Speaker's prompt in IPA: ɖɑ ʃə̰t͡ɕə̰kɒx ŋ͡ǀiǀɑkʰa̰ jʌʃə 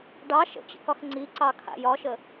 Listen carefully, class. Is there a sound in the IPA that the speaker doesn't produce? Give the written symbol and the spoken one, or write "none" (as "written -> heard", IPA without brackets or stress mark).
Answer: ʌ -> ɒ